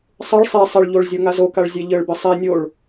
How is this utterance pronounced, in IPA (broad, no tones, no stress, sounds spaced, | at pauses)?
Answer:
sˤ ɘ ɭ sˤ e sˤ ɘ ɭ ʎ o ɭ zʲ o ŋ a z o k a ɭ zʲ e ʎ ɘ ɭ b ɘ sˤ e nʲ o ɭ